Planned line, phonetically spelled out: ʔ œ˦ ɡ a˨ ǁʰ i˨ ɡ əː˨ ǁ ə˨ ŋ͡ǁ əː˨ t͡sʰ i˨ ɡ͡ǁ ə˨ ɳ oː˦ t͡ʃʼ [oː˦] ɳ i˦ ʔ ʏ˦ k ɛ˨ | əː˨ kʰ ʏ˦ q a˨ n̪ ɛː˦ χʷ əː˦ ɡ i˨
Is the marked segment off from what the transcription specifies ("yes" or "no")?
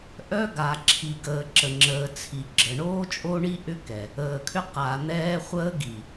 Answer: yes